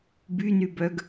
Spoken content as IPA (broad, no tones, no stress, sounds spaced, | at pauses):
b y n y b œ ɡ